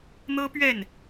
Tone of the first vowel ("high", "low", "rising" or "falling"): high